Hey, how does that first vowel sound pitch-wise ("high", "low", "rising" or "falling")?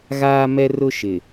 high